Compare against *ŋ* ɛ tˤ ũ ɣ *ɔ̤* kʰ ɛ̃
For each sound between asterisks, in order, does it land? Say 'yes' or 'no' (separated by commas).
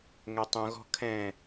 yes, yes